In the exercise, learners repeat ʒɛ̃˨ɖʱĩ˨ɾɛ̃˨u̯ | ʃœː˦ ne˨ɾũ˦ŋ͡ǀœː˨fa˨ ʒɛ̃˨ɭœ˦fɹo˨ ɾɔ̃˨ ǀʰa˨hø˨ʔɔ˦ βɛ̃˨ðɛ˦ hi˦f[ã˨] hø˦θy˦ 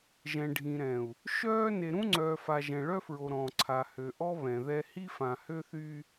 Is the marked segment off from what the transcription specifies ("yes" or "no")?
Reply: no